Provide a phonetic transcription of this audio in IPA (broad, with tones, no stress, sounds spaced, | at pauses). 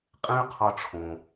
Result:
qʼ ẽ˥ y̯ qʰ ɒ˧ ʈ͡ʂʰ õ˩